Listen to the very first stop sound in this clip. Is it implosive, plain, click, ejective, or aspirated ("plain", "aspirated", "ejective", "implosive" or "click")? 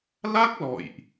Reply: plain